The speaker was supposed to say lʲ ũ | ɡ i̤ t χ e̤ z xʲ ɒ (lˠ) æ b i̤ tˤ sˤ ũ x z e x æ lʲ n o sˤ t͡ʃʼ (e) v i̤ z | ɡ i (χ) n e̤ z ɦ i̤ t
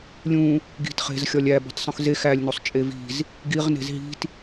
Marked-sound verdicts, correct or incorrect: incorrect: lʲ, correct, incorrect: ʁ

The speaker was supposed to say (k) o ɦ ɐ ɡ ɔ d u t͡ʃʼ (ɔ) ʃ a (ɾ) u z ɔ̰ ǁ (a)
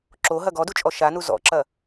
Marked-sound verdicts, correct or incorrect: incorrect: ǁ, correct, incorrect: n, incorrect: ɐ

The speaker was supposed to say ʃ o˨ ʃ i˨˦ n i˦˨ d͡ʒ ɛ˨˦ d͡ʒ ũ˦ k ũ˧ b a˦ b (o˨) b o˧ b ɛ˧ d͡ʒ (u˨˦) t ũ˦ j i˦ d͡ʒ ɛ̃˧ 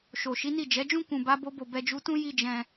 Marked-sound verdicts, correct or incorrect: incorrect: o˦, incorrect: u˧

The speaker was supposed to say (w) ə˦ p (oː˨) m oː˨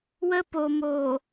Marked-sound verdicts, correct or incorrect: correct, incorrect: o˨

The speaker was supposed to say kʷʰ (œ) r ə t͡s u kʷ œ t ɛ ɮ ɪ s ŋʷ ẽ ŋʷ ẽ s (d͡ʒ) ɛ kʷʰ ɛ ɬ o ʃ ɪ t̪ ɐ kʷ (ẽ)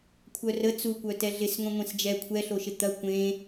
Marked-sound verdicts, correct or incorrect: correct, correct, correct

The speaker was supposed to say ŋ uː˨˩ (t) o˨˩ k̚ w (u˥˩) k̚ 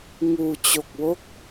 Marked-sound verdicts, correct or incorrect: incorrect: t͡ɕ, incorrect: o˥˩

